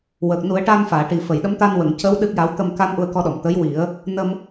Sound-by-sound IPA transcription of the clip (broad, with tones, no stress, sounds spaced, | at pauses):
w əː˨˩ k̚ n u˨˩˦ ə̯ ʈ a˧ n f aː˨˩˨ ʈ i˨˩ f ə˨˩˨ j ɗ ə˧˥ m t̪ a˧ n w ə˨˩˨ ŋ c əː˧˥ w ɗ ɨ˦˥ k̚ j a˧˥ w t̪ ə˧ m k a˧ n ʔ u˧ ə̯ k ɔ˧ ɗ ɔ˨˩˨ m t̪ ə˧˥ j w i˨˩˦ ə̯ | n ə˧ m